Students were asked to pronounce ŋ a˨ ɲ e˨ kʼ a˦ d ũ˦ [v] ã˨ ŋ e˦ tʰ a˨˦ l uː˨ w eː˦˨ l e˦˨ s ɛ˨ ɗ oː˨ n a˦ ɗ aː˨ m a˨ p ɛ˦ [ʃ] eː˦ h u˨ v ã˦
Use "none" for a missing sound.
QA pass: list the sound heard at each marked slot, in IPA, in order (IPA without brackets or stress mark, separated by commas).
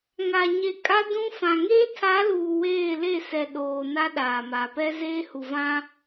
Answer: f, z